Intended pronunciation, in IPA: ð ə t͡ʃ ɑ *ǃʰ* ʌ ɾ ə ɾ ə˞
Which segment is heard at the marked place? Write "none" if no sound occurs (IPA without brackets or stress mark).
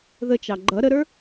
ɡ͡ǃ